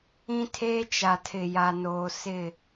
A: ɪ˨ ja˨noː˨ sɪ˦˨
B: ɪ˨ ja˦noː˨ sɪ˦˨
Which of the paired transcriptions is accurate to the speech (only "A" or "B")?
A